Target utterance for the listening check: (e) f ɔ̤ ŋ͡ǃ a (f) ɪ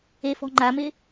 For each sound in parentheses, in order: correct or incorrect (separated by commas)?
correct, incorrect